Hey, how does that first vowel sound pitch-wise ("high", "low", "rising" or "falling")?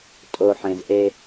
low